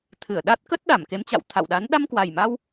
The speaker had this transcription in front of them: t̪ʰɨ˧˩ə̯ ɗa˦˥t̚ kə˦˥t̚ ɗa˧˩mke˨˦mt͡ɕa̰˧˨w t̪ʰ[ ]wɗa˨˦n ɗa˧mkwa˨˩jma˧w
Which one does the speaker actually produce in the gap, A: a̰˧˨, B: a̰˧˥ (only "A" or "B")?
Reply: A